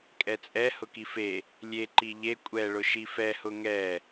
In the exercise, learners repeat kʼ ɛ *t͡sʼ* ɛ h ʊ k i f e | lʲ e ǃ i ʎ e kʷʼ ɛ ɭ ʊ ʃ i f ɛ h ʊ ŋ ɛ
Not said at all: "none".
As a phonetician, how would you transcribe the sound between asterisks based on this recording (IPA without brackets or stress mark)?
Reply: t͡sʼ